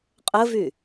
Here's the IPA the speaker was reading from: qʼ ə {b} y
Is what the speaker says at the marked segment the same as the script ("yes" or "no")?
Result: no